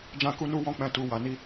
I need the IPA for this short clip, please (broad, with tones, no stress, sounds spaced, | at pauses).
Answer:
d͡ʒ ã˦ k u˦ n u˦ w ɔ̃˦ k͡p ɛ̃˧ t u˨ w a˨ n i˧